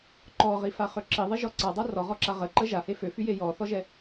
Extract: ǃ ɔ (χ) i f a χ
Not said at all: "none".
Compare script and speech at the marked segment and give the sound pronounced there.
ʁ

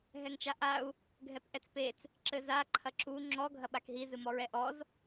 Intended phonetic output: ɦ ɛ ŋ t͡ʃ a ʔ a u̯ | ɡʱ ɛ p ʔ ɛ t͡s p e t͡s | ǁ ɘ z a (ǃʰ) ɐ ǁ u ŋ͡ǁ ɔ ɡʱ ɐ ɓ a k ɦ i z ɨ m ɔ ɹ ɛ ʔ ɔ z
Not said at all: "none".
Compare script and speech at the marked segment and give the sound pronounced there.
ǃʰ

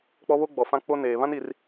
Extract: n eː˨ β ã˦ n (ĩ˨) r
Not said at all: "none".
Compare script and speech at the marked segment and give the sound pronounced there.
i˨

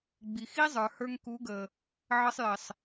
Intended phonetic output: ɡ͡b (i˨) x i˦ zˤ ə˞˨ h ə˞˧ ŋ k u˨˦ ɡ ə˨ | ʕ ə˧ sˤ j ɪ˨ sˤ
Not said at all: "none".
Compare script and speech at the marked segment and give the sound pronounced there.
i˨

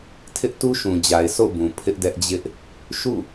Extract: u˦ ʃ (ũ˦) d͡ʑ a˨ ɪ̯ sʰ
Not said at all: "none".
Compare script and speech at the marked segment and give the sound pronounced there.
ũ˨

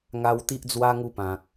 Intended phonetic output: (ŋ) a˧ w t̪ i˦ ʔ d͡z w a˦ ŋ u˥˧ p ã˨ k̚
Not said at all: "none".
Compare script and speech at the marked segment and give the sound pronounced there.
ŋ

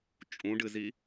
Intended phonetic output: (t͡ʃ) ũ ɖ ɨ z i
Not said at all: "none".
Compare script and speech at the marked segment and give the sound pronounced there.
t͡ʃʼ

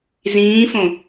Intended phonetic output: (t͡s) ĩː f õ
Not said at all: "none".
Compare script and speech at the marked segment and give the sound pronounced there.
z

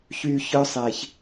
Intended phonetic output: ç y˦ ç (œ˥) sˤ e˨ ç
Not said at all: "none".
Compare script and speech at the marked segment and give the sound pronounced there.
œ˥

